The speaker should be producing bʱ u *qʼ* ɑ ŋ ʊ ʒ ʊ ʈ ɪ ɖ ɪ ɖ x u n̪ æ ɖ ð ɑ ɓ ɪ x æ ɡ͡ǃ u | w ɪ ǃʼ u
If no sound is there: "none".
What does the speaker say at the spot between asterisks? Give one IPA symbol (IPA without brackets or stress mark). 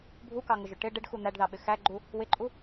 k